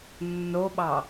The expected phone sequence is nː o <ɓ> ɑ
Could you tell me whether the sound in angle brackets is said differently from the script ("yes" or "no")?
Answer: no